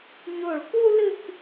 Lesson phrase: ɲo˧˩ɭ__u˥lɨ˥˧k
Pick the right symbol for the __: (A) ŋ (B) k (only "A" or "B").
B